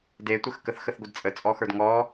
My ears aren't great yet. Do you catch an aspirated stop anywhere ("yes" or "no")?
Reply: no